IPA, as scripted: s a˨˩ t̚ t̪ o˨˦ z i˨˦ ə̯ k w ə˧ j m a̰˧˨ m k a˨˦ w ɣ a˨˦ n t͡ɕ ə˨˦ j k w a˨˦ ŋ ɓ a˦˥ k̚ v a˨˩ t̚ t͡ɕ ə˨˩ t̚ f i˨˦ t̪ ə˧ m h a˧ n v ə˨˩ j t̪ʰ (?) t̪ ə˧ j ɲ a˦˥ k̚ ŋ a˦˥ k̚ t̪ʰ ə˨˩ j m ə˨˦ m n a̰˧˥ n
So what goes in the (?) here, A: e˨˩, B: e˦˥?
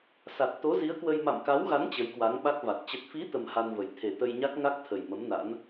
A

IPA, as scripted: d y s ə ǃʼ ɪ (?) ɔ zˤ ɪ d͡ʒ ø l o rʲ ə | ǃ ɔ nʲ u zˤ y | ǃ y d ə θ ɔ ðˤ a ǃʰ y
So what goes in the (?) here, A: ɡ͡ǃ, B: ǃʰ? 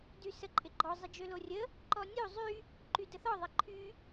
A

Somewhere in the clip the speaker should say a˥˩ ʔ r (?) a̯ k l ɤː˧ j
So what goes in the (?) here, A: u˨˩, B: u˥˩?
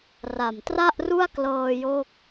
B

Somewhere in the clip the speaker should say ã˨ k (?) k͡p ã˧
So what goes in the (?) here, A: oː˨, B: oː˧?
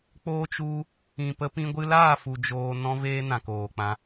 A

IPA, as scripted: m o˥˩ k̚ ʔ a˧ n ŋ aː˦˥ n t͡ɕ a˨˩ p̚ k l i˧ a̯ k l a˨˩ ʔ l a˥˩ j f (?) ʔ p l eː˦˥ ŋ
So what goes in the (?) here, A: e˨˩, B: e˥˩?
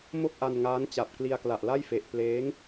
A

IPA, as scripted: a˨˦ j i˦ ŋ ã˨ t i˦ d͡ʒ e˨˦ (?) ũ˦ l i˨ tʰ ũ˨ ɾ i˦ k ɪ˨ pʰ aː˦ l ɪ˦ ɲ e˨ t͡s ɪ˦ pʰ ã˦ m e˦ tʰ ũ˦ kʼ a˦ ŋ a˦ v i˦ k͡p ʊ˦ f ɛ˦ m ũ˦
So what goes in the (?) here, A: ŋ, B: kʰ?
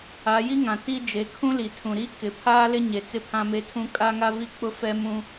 B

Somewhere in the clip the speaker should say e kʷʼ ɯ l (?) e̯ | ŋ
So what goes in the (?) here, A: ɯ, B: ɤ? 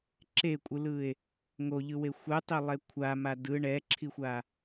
A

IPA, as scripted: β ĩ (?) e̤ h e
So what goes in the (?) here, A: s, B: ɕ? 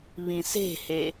A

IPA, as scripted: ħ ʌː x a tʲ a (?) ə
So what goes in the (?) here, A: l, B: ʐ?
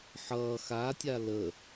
A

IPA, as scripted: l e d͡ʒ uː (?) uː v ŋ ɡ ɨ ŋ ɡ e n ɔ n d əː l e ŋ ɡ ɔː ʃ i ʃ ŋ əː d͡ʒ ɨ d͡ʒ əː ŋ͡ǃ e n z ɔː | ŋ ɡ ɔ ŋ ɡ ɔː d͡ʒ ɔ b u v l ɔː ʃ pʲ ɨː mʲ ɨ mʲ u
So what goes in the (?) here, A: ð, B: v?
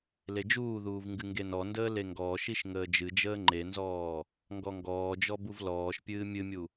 A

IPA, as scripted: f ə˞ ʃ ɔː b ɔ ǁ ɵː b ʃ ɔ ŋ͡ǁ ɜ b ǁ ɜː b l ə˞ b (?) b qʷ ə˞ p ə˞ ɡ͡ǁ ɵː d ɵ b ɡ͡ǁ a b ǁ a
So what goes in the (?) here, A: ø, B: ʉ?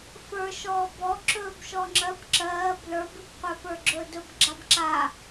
B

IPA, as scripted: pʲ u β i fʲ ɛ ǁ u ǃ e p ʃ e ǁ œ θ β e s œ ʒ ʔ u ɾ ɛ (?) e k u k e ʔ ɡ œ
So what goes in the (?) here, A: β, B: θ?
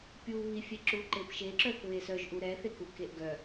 B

